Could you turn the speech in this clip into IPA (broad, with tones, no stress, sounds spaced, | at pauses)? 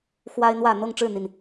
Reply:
x w a˦ ɪ̯ n̪ w ä˥˨ n̪ ɤ˥˨ ŋ ʈ͡ʂ ɻ̩˥˨ n̪ i˨˩ n